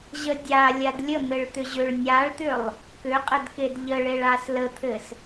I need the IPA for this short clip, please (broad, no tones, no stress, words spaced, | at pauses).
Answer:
ʑədʲa lʲadlʲən̪ɘɭt̪ʏ ʑʏɭ nʲaɭt̪ʏlˠ | kʏqʼədked ʎəɭeɭas lət̪ʰɘs